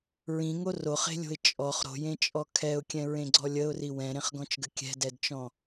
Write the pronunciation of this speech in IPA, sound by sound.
ɹ ĩ ŋ o r o χ e̤ lʲ o̤ ɪ̯ t͡ʃʼ ɔ χ ɾ o̤ j ẽ t͡ʃʼ ɔ kʰ ɛ ʊ̯ kʲ ɛ̃ ɹ ẽ ɡ͡ǀ ɔ lʲ ə ʊ̯ r i w ɛ̃ ɾ ẽ χ ɡ ɔ̃ t͡ʃ ɡ ə kʲ ɛ̤ d ɛ d t͡ʃ ɔ̃

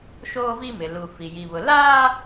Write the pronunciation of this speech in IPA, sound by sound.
ʃ oː˦ v i˦ m ɪ˨ l u˨ f i˨ j i˨ β ʊ˨ l aː˦

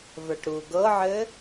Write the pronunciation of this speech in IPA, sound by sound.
v ə˞ ʈ ɾ u ɡ ɤ ʕ ɘ

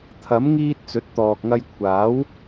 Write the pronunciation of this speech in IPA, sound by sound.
t̪ʰ ɐ˨˥ m ŋ iː˧ t̚ t͡s ɵ˨˥ t̚ t̪ ɔː˨ k̚ ŋ ɐ˧ j kʷʰ aː˨˥ w

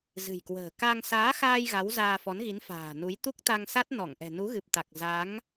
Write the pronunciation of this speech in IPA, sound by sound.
z ɨ̤˨˩ j k w ə̤ː˨˩ k a˧ ŋ s aː˨˦ x aː˧ j ɣ a˨˦ w z aː˧ f ɔ˨˦ n ɣ i˨˦ n f a̤ː˨˩ n u˨˦ j t̪ u˦˥ k̚ t̪ a˧ ŋ s a˦˥ t̚ n ɔ˧˩ ŋ ʔ ɛ̤˨˩ n u˨˦ ɣ ɨ˨˩ p̚ t̪ a˨˩ k̚ z a˨˦ ŋ

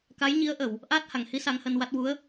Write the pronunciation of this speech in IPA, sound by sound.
k a˧˥ j ɲ i˧˥ ə̯ ʔ ə˨˩˨ w | ʔ aː˦˥ t̚ h a˨˩˨ ŋ h i˧˥ s a˧˥ ŋ h əː˧ n w a˦˥ t̚ w u˧˥ ə̯

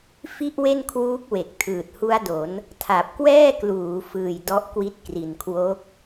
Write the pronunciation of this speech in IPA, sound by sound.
f i˥˩ ʔ w e˥˩ n kʰ w uː˦˥ k̚ w e˨˩ k̚ tʰ ɯː˨˩ t̚ h u˦˥ a̯ d o˩˦ n | tʰ a˨˩ p̚ k w ɛː˥˩ k l uː˩˦ f ɯː˨˩ j d ɔ˦˥ ʔ k w i˦˥ t̚ k r i˨˩ n kʰ w o˦˥ k̚

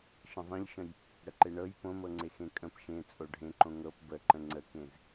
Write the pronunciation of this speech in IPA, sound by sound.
ʃ ə̃ ðˤ ĩ ʎ ʃ ə̃ j | ɽ ə ǃ e ɳ ɤ j p õ m ɤ ŋ͡ǀ e x ẽ kʼ ə̃ p ʃ ẽ t͡sʼ o ɖʱ ẽ ǃ õ ŋ ɤ p b ə ǃ ə̃ ŋ͡ǀ ə k ẽ z

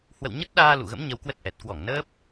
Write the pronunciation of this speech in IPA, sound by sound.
h w ə̰˧˨ w ɲ ə˦˥ t̚ ɗ aː˧ l ṵ˧˨ ɣ ə̰˧˥ m ɲ ə˧ w k w ə˦˥ t̚ ʔ ɛ˨˩ t̚ k w ɔ˧˩ ŋ n əː˦˥ p̚

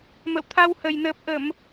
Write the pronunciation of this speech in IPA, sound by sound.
m ə̰˧˨ w t̪ʰ a˧ w h ə˨˩ j n əː˨˩ p̚ ʔ ə˧˩˨ m

